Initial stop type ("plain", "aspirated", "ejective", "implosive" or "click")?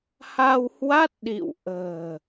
plain